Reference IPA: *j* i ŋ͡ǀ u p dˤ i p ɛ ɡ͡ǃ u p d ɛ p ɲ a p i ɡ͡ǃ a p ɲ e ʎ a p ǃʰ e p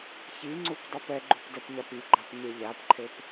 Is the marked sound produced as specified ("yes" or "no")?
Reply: no